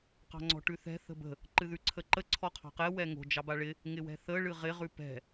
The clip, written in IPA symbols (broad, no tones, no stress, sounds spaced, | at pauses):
q ɑ̤ ŋ͡ǀ ɔ̤ ʈ ʉ θ ɛ̤ θ ə̤ b ə̤ | ǃ ɨ ð ʉ ǀʰ ə ǃ ə ǀʰ ɔ qʰ ɑ̤ q ɛ w ɛ ŋ o̤ d͡ʒ ɑ b a ɭ ɪ | ŋ ɪ w ɛ̤ θ ə ɭ ɨ ʁ ɪ ʁ ʉ p ɛ̤